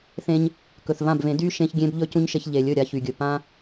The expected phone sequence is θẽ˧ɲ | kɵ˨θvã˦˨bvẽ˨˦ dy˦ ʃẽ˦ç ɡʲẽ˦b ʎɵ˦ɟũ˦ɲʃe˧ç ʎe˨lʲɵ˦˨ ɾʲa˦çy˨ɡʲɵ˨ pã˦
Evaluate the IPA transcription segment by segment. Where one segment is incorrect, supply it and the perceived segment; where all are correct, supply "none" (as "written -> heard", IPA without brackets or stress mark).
ɟ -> c